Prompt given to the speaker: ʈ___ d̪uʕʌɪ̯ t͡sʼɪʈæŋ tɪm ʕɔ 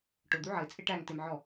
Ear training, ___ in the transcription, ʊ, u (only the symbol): ʊ